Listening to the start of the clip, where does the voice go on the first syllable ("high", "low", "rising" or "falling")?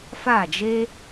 falling